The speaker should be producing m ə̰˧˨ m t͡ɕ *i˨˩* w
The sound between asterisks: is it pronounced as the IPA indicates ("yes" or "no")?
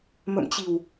yes